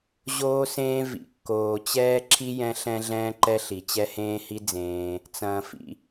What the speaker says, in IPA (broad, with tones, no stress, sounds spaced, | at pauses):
ʑ oː˥ s ẽː˥ v ḭ˨ kː oː˨ t͡ɕ ɛː˥ ǁʰ i˥ j ɛ̃˥ ɬ ɛ̃˥ ɮ ɛ̃ː˥ ǃ ɛ˥ ɬ i˨ t͡ɕ ɛ˥ h ẽː˥ h i˥ d͡z ẽː˨ | t͡s ɐ̃ː˨ f ḭ˨